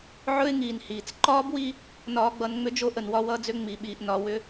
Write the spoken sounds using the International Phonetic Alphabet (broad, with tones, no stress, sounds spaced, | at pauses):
ʕ ɵ˦ ɪ̯ ŋ iː˨ n h iː˨ t͡s ǃ ɒː˦ b w i˦ | n ɒː˨ ɡ͡b ʌ˨ n ŋ͡m ʏ˦ d͡ʒ o˦ ʔ ə˨ n w ɒ˦ w ʌː˦ d͡z ʏ˦ ŋ͡m i˨ ɓ iː˨ ʔ n ɒ˨ w ʏ˦